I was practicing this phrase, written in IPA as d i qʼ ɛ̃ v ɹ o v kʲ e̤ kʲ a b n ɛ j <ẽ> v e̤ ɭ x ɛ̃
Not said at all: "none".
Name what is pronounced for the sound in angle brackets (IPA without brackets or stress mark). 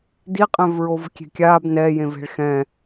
ẽ